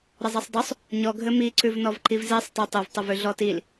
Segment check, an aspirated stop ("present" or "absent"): absent